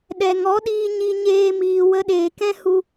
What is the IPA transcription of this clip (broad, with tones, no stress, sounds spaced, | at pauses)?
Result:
ɗ ɛ˨ ŋ ɔ˨˦ ɗ iː˧ ɲ i˧ ɲ eː˧ m iː˨ w ə˧ ɗ eː˨ k ɛ̃˦ h u˧